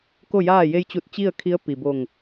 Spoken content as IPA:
k o˥˨ j aː˥˨ j e˧ j t͡ɕ u˧˩ t̚ t͡ɕ i˥˨ ə̯ kʰ i˧˥ ə̯ p i˩ b o˧˩ ŋ

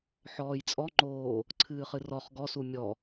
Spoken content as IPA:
ħ ɔː j t͡sʼ ɔ ŋ͡ǃ oː | ǀʰ ɨː χ ɨ r ɔ χ ɡ ɔ s u mʲ ɔ

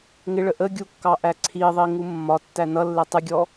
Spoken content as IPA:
ŋ ɪ ɭ ə ʔ ə ɡʲ u kː ɑ ʔ æ ǀʰ i ðˤ i ŋ u mː ɒ tː æ n ʌ lː ɪ tˤ ɪ ɡʲ ɔ

